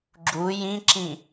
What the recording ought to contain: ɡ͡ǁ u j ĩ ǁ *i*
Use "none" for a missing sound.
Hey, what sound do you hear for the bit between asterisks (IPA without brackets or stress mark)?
ĩ